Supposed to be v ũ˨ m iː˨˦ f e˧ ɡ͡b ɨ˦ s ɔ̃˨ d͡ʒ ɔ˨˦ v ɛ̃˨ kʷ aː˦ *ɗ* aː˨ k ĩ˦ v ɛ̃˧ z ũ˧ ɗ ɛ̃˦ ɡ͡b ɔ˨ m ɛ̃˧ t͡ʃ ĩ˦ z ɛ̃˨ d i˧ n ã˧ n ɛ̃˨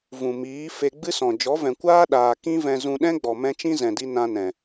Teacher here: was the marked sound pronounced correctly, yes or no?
yes